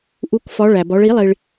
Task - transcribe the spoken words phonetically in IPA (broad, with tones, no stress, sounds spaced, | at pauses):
ʔ u˩˧ k f ɒ˩˧ ɭ æ˩ b ɒ˩˧ ɭ i˧˩˧ lˠ i˩ ɭ